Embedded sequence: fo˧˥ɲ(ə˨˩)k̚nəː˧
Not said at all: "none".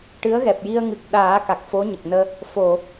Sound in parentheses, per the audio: ə˨˩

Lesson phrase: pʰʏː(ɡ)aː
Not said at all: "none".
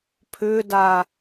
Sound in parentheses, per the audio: d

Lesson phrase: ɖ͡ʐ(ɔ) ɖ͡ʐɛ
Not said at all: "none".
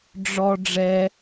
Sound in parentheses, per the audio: ɔ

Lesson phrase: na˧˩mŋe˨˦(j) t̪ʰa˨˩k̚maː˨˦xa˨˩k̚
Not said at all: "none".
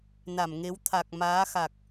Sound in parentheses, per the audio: w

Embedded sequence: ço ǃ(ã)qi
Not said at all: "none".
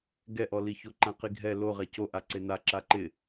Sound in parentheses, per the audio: ã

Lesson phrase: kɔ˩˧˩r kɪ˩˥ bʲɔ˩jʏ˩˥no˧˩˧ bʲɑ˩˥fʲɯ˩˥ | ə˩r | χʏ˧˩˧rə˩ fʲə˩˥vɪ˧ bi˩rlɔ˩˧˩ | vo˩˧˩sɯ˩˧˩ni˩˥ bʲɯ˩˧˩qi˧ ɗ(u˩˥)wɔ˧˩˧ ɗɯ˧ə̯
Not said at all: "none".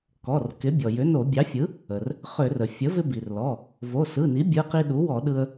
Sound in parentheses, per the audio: u˩˥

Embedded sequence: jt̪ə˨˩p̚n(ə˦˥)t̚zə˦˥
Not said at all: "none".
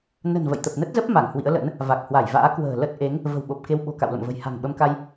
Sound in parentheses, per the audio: ə˦˥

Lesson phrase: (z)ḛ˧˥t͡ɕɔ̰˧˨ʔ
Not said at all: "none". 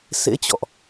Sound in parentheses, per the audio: s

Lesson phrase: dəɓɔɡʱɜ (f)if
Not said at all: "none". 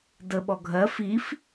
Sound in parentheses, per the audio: f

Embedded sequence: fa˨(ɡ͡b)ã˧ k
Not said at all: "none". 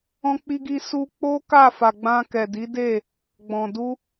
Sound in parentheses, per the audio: ɡ͡b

